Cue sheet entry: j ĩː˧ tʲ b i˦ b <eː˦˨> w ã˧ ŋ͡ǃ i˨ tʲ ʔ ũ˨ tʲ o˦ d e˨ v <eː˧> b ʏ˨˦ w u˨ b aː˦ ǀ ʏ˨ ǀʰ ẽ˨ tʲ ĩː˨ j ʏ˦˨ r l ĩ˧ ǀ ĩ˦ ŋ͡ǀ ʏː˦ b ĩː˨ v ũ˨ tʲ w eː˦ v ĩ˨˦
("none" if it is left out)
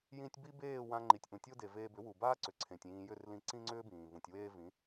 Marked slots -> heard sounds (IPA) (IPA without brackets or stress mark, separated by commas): eː˦˨, eː˧